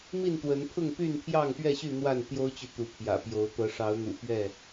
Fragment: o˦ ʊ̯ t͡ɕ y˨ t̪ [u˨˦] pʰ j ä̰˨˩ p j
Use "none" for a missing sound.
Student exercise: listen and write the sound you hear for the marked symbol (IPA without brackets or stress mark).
u˨˦